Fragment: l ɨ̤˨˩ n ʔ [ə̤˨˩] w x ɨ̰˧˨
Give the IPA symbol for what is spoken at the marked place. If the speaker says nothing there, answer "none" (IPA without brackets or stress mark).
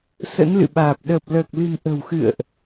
ə̤˨˩